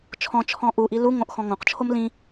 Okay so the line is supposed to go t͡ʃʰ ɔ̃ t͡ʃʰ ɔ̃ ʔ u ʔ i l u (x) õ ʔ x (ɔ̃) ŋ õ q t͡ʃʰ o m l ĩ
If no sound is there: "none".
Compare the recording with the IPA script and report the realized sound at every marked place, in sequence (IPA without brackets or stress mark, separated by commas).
ŋ, ɔ̃